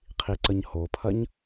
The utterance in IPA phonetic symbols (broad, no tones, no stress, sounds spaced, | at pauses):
qʰ i ǀ ə ɲ h o pʰ ɐ ɲ